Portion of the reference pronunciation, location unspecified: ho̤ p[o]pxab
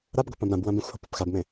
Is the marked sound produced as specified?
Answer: no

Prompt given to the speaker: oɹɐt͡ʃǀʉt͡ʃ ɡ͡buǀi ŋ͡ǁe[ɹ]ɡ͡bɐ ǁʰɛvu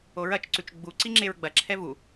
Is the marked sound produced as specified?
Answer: yes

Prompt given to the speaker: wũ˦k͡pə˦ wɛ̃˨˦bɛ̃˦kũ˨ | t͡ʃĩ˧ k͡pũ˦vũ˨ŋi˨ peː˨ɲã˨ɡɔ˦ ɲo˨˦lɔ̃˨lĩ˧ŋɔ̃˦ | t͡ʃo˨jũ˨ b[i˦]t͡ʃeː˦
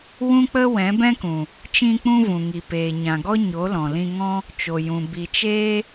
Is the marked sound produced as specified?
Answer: no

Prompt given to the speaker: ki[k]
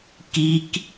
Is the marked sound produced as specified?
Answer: yes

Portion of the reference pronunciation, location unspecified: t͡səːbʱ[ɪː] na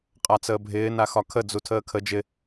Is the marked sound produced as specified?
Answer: yes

